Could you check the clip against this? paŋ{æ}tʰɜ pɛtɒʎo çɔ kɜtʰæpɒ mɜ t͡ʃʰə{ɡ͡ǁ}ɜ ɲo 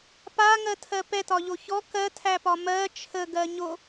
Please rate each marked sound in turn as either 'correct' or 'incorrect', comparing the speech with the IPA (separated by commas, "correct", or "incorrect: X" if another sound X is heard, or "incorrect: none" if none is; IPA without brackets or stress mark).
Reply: incorrect: ɜ, incorrect: ɡ